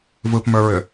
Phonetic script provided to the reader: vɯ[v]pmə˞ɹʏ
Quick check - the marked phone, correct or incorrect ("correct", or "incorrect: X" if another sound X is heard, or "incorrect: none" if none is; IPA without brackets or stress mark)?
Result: incorrect: none